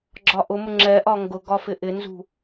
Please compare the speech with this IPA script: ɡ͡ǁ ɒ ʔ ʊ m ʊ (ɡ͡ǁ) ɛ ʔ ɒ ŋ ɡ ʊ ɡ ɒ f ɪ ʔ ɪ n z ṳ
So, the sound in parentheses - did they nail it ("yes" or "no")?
no